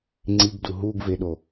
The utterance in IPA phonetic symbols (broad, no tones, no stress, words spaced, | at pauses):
ŋ͡ǀiɡdu ɦuɡveɗo